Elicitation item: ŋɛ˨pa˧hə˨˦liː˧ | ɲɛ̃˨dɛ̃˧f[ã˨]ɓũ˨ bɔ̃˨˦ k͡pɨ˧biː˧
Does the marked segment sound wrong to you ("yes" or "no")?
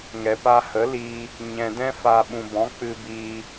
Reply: yes